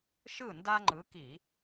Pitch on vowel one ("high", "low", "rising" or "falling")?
falling